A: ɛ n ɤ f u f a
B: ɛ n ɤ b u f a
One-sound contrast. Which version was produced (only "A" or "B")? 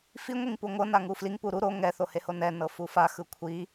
A